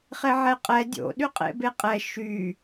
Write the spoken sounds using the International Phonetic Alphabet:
χ e ʕ ɛ qʼ ɛ dʲ o̰ ɗ y qʼ ḛ b e qʼ ɛ ʃ y

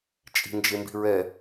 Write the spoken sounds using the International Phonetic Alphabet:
t͡ʃʼ i̤ n d͡ʒ e m b i̤ ɹ ɛ

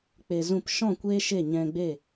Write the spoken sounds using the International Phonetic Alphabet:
k͡p e˧ z ũ˦˨ p ʃ ɔ̃˦˨ kʷ eː˦ ʃ e˦˨ ɲ ɛ̃˧ ɡ͡b e˦˨

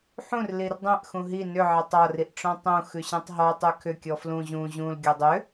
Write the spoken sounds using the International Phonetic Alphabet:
ħ ũ r l i r dˤ ɛ̃ ʔ x ũ ɦ i n ʏ ʕ ɛ tˤ ɒ r i ʔ ʈ͡ʂ ɔ̃ tˤ ũ x ʉ ɕ ɛ̃ tˤ ɦ ɔ tˤ ʉ kʰ ʏ kʲ ɔ f l ũ ʑ ũ ʑ ũ l ɡʲ ɔ dˤ ʏ

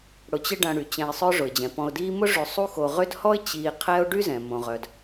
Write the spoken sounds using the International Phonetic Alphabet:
ɽ ʊ˨ t͡ɕ ɪ˦ ɖ ɐ̃˨ ɽ y˩ t͡ɕ ɛ̃˨ ɪ̯ sˤ œ˦ ʐ ʊ˩ ɪ̯ d͡ʑ ɛ̃˩ p ɔ̃˨ ʊ̯ d iː˦ m ʊ˥ ʐ ø˨ sˤ u˥ x o˨ ʁ ʏ˦ d h ɔ˥ ɪ̯ t͡ɕ iː˨ qʰ ɛ˦ ʊ̯ ɖ y˥ z ɛ̃˩ m õ˩ ʁ œ˩ d

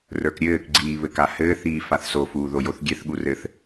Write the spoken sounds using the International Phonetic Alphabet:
r ə˞ k ɾʲ ɘː k ɡ͡ǀ iː β ɘ k a h ɘː θ iː f a θ s o f uː ð o j o θ ɡʲ ɛ θ ɠ u r ɘ θ

